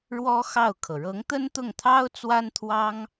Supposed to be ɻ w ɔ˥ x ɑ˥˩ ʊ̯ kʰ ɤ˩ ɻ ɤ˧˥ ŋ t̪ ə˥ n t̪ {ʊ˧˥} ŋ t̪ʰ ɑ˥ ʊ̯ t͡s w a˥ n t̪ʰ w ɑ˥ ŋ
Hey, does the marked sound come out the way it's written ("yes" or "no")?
no